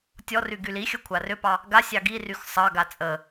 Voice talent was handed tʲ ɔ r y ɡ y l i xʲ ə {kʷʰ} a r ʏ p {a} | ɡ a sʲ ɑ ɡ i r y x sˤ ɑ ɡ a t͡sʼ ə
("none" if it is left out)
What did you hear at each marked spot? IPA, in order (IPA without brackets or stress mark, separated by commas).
kʷʰ, ɑ